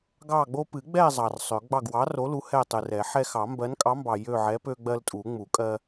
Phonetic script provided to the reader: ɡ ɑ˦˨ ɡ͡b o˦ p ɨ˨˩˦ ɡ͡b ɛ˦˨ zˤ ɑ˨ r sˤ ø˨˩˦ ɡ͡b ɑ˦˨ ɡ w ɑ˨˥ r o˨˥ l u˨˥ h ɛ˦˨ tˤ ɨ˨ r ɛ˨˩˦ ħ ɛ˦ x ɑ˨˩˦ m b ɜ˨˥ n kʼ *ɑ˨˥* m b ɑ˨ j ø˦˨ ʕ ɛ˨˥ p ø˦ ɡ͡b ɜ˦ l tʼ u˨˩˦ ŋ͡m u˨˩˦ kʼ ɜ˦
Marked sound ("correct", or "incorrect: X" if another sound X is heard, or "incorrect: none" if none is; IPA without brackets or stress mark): correct